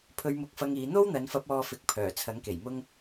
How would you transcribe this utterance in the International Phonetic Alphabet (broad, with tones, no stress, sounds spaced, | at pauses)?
pʰ ɵ˧ ɥ m ʊ˧ k̚ f ɐ˧ ŋ iː˨˧ n̪ o˥ w n̪ ɐ˨˧ n f ɐ˧ p̚ ɔː˧ f ɪ˨˥ k̚ pʰ œː˨˩ t͡sʰ ɐ˨˥ ŋ k e˨˩ j m ʊ˥ ŋ